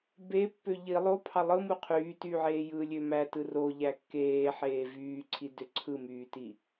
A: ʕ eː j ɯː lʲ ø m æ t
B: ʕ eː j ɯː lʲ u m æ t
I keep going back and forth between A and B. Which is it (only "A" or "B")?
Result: A